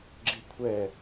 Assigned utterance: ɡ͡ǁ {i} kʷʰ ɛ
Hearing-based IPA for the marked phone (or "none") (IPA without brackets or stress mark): i